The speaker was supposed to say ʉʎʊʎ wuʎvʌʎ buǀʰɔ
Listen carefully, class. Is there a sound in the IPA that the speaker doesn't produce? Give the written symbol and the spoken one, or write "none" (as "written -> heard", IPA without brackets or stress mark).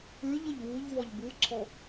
ʌ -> ɔ